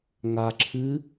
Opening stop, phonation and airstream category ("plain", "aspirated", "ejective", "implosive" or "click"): click